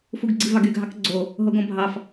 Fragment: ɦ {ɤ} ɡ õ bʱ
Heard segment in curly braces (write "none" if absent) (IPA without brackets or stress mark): o